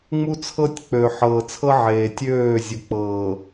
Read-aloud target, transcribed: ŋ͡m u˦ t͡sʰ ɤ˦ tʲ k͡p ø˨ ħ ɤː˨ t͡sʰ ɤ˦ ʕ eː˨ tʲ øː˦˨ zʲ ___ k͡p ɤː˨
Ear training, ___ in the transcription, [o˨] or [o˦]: o˨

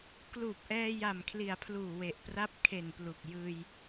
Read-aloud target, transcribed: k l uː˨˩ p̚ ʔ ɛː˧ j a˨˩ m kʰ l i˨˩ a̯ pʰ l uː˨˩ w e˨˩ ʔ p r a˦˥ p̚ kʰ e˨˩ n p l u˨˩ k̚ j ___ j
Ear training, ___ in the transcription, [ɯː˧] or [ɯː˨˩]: ɯː˧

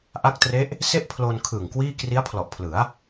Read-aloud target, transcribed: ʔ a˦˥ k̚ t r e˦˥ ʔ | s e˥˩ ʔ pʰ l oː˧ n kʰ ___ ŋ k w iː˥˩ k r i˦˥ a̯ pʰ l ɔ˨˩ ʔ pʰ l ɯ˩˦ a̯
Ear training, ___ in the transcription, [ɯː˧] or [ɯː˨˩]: ɯː˨˩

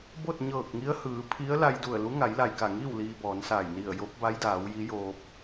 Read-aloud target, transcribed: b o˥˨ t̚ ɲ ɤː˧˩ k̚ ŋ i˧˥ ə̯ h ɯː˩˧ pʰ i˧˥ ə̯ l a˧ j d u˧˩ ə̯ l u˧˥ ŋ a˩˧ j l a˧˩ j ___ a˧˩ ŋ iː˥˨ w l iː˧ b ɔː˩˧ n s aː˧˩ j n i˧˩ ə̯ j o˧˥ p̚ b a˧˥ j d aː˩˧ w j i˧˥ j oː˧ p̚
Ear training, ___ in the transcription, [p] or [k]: k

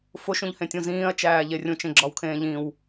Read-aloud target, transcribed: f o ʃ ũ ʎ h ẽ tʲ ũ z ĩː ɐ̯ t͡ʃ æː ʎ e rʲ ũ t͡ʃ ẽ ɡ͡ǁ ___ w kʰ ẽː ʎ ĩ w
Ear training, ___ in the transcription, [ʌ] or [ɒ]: ɒ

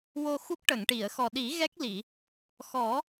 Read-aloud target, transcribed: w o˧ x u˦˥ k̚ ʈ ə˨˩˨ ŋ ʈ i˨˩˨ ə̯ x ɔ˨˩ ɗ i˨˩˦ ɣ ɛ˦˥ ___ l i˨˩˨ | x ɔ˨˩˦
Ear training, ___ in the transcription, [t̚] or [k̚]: k̚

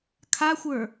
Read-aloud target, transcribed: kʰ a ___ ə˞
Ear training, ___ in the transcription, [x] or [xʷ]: xʷ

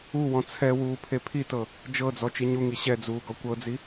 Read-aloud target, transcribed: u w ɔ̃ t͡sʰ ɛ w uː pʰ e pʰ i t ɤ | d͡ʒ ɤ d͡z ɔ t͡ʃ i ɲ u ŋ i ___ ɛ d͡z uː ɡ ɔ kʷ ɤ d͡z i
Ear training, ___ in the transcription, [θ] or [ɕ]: ɕ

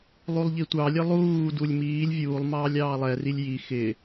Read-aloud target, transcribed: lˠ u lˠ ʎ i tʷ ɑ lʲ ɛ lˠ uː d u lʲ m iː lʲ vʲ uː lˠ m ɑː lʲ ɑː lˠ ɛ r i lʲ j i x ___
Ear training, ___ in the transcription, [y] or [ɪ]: ɪ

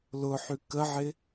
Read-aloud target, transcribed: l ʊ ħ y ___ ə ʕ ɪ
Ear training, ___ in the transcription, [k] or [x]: k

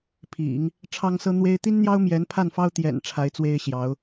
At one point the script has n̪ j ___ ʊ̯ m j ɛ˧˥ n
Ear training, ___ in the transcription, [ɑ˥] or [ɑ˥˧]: ɑ˥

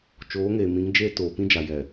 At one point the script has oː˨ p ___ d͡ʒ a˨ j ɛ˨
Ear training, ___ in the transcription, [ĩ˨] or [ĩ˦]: ĩ˦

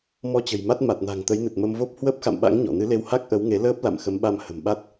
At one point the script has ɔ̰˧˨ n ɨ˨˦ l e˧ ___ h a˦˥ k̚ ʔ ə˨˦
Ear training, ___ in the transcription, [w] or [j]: w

